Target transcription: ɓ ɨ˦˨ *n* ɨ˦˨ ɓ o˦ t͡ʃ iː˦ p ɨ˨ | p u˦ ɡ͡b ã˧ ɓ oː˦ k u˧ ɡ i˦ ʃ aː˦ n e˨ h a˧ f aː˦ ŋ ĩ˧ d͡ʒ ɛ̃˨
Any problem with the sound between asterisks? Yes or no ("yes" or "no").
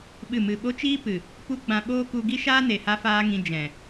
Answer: yes